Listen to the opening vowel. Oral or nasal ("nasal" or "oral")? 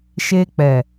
oral